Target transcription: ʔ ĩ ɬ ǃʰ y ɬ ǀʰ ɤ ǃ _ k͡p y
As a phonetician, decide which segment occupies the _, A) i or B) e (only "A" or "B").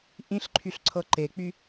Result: B